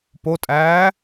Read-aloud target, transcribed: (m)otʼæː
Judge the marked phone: incorrect: p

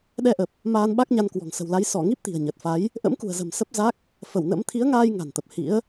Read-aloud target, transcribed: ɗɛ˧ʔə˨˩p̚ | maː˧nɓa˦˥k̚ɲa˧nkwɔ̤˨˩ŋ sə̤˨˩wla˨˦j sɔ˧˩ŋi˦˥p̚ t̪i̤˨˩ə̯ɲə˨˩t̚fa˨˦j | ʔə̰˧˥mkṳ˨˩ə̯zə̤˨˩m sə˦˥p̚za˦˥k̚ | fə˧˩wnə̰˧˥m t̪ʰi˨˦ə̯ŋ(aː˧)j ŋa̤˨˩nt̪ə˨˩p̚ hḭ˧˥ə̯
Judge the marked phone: correct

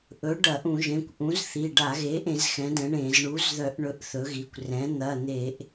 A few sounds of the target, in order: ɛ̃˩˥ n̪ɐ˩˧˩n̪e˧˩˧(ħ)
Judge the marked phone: incorrect: ʔ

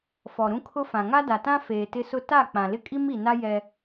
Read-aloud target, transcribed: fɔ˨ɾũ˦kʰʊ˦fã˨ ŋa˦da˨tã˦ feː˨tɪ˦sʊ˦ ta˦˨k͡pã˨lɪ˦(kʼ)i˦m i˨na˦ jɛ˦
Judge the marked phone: correct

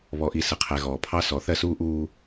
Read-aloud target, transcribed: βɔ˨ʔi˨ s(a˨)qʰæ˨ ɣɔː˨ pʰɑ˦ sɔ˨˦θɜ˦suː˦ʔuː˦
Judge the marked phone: incorrect: ə˨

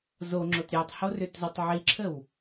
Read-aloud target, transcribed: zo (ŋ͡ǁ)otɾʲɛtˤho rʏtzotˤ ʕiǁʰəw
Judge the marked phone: correct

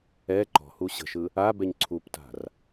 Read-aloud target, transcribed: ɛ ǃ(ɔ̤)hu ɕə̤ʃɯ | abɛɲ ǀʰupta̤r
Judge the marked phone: correct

